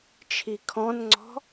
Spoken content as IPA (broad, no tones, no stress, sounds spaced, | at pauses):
t͡ʃʰ i kʰ ɔ̃ n ŋ͡ǀ ɔ̤